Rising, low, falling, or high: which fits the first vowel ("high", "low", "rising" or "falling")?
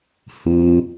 low